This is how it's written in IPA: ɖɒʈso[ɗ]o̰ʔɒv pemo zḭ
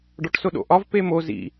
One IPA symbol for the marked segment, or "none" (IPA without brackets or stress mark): ɗ